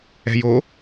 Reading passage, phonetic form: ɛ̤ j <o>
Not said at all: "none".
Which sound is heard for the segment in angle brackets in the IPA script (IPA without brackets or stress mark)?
o